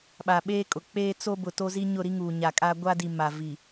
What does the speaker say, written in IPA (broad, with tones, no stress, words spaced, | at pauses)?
ɓa˨ɓeː˦kʼʊ˨ k͡peː˦ t͡so˦bʊ˨ to˦zi˦ ɲʊ˦˨ɾi˦ ŋuː˨ɲa˨kʼa˦ ɡʷa˦di˨ ma˨ vi˨